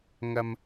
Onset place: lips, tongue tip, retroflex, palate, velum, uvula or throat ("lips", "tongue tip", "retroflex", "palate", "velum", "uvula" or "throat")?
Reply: velum